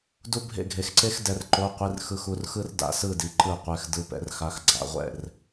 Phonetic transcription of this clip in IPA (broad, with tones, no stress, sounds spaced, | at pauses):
d u˥ bʱ ḛ˥˨ ɡʱ e˧ x ǀ e˥ x d ɛ˧˥ r ǃ o˧˥˧ qʷ i˧˥˧ r x ɯ˧˥ x u˧ r x ɯ˥ r d a̰˧˥˧ s ɯ˥˨ d i˧ ǃ ɯ˥˨ qʷ ɛ˧˥˧ x d ɯ˧˥˧ p ɛ̰˧˥ r x a˧˥˧ x ɡ͡ǀ a̰˧˥˧ ʁʷ ɛ̰˥˨ r